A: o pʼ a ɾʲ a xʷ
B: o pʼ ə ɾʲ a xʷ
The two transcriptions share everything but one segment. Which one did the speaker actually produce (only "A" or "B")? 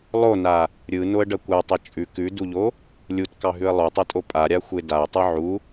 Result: A